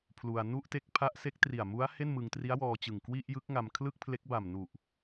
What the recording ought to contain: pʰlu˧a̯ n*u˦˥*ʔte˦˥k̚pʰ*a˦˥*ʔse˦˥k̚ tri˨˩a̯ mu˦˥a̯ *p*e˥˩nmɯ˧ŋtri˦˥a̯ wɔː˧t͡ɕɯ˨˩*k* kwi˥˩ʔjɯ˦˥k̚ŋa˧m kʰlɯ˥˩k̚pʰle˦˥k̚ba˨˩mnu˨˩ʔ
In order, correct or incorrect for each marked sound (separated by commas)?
incorrect, correct, incorrect, incorrect